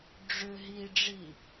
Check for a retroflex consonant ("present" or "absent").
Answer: present